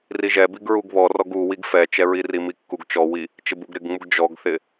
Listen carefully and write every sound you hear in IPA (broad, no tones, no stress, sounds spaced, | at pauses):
r i ʒ ɛ b i ɡ ɹ u ɡ β ɔ r ɔ ɡ u w i ɡ f ɛ t͡ʃ ɛ ɹ i r i m i kː u ɡ t͡ʃ ɔ w i | t͡ʃ ɪ b u ɡ ɾ ɪ ɡ ŋ͡m u ɡ d͡ʒ ɔ ɡ θ ɪ